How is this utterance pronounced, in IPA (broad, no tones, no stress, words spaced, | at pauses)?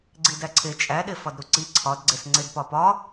ɡ͡ǀidæǀʰe t͡ʃʼæɗe fɒdɾuǀi ǀʰɒdɡ͡ǀes ŋ͡ǀedpɒpɒ